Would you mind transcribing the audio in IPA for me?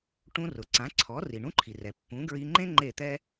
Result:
ʈũ˧rʊ˩ǀã˩˥ǀʰɔ˩˥ ri˩ɳũ˥ǃʰi˩rɛ˩ pːũ˩˥ɡɹi˧ ŋ͡ǃẽ˥ ŋ͡ǃe˥˩t̪ɛ˥

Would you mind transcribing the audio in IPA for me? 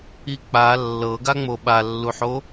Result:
ik͡pa lːɤɡaŋ͡mo ɓalːuħo

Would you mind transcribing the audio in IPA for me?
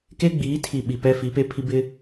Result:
ke˦ɡ͡biː˨˦tʰi˨ ɓi˨pɛ˦ fi˨˦pe˦pʰi˦ bɪ˦

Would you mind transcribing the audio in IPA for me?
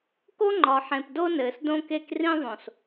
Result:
ko˦ŋ͡ǃɒ˨ ħẽ˨pdo˦ nɘː˨sdõ˦ke˦k rĩ˦ðˤõ˨s

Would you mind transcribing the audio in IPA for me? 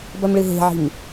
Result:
bɐmɭɨɦe̤ʕi̤m

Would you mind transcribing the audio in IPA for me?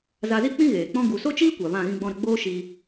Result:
za˧zi˦k͡pĩ˦ɣeː˨ k͡pɔ̃˧ɡu˨so˦t͡ʃiː˦ kʷa˨vã˦˨ ɣĩ˧ɡ͡bɔ̃˧ɾə˧ɡ͡boː˦ ʃi˧

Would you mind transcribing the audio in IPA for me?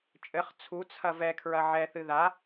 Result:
t͡ʃʼɘχ t͡sʰut͡sʰɐ vɛkʰɹɐ ʕɛθɨ ða

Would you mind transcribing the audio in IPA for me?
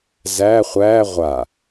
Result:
zæ χʷæ ʁʷa

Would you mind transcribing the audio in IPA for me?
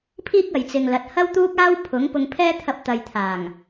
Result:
pʰiː˥k̚ɐ˨jt͡sɪ˨ŋlɐ˨t̚ hɐ˥wt̪uː˥k̚aː˥w pʰʊ˨˥ŋ pʊ˧ŋpʰɛː˥t̪ʰɐ˧p̚t̪ɐ˨j t̪ʰaː˨˩ŋ

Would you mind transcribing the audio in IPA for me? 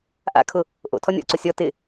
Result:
ʔa̰kʰʊ | ʔo̰ tʰɔnʲɔ̰ǀo sʲɔ tɪ

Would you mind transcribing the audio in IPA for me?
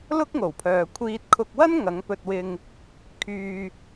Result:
lʊ˥k̚ŋo˨˩wpʰœː˨ kʷʰiː˧t̚ kʰʊ˧k̚wɐ˥n ŋɐ˨˧ŋpɵ˧t̚wɪ˧ŋ | kʰyː˨

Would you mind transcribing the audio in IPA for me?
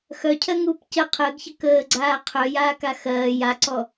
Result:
xœcʰɜŋuːp cə qʰəːɡçə kəːɡ͡ǀaː qʰœjaːka xɜː jaǀɔ

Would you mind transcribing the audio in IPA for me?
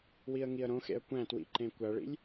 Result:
wiə̯ŋiə̯ɾõxḛə̯ kʷæ̃twḭ ǃẽkʷæɭḭlʲ

